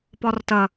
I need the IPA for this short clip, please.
pɒrtɐ

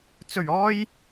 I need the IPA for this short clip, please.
t͡sɵ˨˩ɥɔː˧j

